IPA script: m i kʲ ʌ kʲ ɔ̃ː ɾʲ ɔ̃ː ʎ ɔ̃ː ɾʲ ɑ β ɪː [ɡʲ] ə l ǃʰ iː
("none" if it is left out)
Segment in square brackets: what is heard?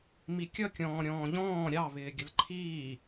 ɡʲ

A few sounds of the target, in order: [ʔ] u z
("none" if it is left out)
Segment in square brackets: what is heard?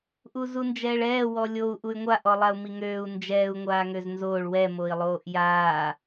ʔ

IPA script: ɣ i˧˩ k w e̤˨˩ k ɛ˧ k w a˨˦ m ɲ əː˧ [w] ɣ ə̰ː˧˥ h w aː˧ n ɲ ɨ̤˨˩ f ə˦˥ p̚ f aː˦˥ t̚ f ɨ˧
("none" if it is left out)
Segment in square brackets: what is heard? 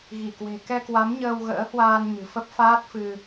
w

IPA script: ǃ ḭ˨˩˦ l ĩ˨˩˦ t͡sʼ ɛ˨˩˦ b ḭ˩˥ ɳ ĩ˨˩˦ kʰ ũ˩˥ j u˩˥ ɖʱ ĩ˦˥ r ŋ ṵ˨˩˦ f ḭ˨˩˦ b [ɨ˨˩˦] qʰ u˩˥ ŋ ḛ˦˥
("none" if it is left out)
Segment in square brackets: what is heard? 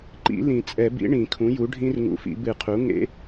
ɨ˨˩˦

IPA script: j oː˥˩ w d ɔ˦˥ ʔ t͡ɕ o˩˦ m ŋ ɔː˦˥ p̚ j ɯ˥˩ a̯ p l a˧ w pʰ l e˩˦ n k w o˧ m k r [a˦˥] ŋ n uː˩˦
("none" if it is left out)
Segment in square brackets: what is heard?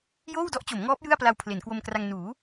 a˧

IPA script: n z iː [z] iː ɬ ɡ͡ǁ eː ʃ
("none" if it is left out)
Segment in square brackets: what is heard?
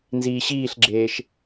ɕ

